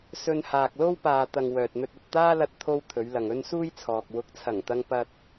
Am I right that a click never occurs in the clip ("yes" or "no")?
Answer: yes